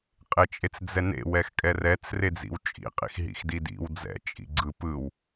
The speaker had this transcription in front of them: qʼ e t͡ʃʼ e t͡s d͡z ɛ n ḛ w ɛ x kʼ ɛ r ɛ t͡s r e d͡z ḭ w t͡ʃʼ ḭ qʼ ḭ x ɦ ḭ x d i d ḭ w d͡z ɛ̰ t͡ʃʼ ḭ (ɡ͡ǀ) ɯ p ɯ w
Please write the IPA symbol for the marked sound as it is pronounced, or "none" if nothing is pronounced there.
ɡ͡ǀ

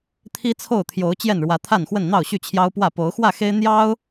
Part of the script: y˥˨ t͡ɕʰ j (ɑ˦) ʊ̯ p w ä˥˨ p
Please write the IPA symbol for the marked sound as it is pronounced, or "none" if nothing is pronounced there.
ɑ˦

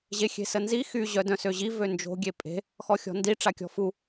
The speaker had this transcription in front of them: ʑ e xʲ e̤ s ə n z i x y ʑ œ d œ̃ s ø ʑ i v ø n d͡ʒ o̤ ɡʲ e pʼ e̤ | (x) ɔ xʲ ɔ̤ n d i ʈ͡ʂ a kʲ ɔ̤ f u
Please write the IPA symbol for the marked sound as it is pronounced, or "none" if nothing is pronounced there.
x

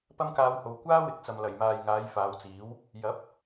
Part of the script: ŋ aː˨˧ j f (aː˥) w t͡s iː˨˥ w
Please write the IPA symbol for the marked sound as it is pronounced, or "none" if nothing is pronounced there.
aː˨˧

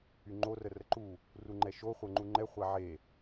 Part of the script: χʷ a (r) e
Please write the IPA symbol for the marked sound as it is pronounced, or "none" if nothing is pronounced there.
ʕ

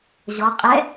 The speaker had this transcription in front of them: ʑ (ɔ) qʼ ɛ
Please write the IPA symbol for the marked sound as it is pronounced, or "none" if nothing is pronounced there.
ɔ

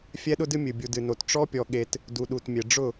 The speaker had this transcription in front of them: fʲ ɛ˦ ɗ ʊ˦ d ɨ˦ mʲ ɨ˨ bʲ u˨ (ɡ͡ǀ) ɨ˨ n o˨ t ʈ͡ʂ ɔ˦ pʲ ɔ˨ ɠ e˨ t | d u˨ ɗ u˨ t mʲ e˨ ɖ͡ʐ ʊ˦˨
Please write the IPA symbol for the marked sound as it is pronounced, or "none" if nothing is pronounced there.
d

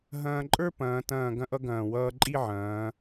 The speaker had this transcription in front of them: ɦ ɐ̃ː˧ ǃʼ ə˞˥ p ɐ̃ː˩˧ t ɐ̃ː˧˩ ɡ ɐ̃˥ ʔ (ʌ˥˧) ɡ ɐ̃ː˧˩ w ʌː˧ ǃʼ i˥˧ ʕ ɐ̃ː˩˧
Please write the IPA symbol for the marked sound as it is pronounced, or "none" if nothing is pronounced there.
ʌ˥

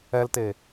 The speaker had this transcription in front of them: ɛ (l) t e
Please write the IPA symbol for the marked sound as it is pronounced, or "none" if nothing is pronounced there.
l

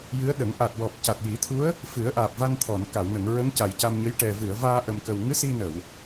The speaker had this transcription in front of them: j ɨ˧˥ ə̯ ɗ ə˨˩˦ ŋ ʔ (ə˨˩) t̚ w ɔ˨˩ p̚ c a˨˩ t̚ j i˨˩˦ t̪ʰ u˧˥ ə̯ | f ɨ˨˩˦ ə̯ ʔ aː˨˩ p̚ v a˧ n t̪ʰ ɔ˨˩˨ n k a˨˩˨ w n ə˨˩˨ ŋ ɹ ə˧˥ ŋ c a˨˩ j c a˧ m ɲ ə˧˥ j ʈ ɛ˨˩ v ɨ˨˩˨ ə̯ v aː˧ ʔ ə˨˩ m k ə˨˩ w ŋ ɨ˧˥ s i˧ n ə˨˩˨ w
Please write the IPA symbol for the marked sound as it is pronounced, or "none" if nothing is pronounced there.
a˨˩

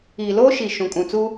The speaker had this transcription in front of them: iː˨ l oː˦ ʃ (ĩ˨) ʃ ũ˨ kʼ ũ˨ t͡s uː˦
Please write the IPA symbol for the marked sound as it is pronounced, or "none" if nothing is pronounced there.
i˨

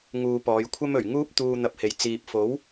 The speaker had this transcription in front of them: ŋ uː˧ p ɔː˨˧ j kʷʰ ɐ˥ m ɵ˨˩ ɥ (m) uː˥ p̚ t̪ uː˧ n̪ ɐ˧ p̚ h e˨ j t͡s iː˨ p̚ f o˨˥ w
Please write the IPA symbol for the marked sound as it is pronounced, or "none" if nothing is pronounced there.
ŋ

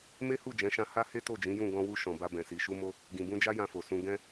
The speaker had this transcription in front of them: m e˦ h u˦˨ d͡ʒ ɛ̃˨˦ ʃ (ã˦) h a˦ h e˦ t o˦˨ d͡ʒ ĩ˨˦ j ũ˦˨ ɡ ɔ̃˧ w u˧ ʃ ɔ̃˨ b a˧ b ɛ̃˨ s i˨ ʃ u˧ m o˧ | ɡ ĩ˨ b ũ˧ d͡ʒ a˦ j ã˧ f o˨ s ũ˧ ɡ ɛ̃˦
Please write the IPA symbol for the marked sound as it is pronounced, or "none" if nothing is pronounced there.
ã˧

